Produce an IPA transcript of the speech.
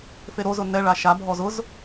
f e ɾ o z ʊ n ɛ ɭ a ʃ a bʱ ɔ z ʊ z

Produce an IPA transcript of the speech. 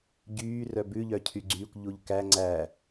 ɟ yː r œ b ʉ ʎ œ cʰ y ɡ͡ǀ yː kʷ ʎ u ʎ k æ ŋ͡ǀ æ

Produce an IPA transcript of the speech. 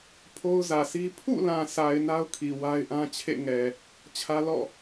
pʰ o˦ ʊ̯ z ä˨ s i˦ pʰ ṵ˦˨ l ã˨ sʰ a˨ ɪ̯ n a˦ ʊ̯ kʰ i˨ w a˦ ɪ̯ ʔ ã˦ t͡ɕʰ ḛ˦˨ ŋ ɛ˨ | t͡ɕʰ ä˦ l ɔ̰˦˨

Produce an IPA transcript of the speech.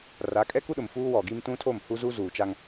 r a˨˦ kʼ ɛ˦ k u˦ ɗ ʊ˨ m f uː˦ w ɔ˨ ɡ i˦ m t ũ˦ tʰ o˦˨ m h u˦ z u˦ z uː˨ t͡ʃ a˦ ŋ

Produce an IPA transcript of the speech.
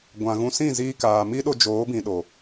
ɡʷ ã˨ ɣ ũ˧ s ĩ˦˨ z iː˧ k aː˨ m i˦ ɗ o˧ d͡ʒ oː˨˦ b ĩ˨ ɗ o˨

